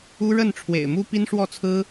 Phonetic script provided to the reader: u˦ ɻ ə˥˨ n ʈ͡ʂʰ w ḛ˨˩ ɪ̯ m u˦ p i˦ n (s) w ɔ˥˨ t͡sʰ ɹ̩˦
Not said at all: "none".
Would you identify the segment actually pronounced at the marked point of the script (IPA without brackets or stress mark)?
ʂ